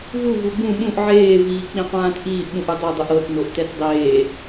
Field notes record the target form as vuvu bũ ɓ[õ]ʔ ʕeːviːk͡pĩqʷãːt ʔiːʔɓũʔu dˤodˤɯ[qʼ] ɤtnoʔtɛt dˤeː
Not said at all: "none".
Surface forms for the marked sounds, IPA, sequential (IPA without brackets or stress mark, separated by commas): ũ, ʔ